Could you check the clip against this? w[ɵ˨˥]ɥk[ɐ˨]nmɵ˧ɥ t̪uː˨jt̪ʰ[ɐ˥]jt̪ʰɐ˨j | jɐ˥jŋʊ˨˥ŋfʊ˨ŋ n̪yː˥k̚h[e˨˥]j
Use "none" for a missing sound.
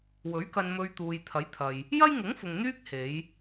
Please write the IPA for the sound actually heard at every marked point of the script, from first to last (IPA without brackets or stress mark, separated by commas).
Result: ɵ˨˥, ɐ˧, ɐ˨˥, e˨˧